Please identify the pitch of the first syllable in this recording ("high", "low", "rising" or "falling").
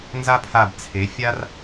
high